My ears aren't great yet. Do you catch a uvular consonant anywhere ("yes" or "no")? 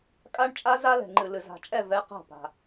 yes